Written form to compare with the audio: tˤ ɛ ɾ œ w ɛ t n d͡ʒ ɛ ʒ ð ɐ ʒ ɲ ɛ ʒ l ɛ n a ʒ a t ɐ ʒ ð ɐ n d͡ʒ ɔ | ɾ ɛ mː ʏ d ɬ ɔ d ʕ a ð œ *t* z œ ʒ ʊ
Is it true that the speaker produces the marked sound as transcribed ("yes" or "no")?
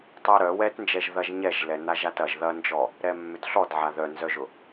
no